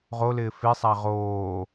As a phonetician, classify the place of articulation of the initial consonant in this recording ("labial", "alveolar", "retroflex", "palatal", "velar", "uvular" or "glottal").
uvular